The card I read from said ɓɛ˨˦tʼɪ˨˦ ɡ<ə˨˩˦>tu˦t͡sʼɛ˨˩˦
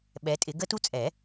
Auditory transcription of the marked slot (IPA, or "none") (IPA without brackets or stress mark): ə˦